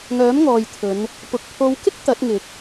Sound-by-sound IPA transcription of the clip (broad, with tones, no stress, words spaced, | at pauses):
ŋœː˨˥mŋɔː˨jt̪ʰɵ˨˧n | pʊ˨k̚ pʰo˨˧wkɪ˥k̚ t̪ɐ˨˥t̚ŋɪ˨k̚